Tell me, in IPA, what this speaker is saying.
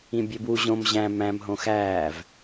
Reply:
ĩbʲebwu ʑõm ʑæ̃ mæ̃m ɦõxæːv

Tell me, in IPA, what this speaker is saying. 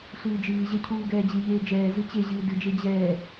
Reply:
ɬɨːd͡ʒɨːʑɛ cʰuːɡɛːd͡ʑɨʎeː d͡ʒɛː zɨt͡ɕeʑɨː dɨd͡ʒe d͡ʑɛː

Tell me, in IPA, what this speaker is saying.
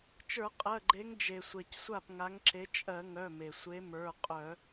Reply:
t͡ʃə˞˧˩˧ qʼɜ˩˧˩ɡ͡ǃe˨˦ŋ d͡ʒe˩ sʷɛ˩csʷa˥˩p ŋa˨˦ŋǁe˨˦ t͡ʃʼɜ˧˩˧ŋœ˩˧˩me˩sʷe˨˦ mə˞˩˧˩ qʼœ˧˩˧

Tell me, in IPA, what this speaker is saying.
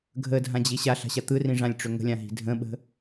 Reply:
ɡʱədʱãd͡ʑi ɕaɬa̤ɕa t̪ɯrĩʐãlʲʈ͡ʂʏ ŋə̤lʲãɦi̤ dʱə̃ɓə̤

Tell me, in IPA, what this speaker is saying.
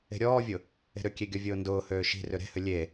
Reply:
e̤ɾʲɔːvʲʊ | e̤ɾʏkʲe ɡʲɔvʲʊːndʊːhøː ʃi̤ rʏɾe̤hʏ lʲe

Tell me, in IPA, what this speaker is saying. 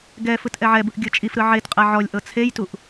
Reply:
ɡɛfɯt ʔɛʕɛbɯʔ ɡʲɤt͡ʃʼifɾɯ ʕetqʼɛ ʕɔlʲʔɤ t͡sʰejtuʔ

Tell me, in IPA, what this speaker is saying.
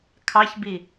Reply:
kʰɑçbi

